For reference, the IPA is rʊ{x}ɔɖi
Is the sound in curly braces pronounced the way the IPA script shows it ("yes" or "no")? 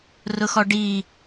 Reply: yes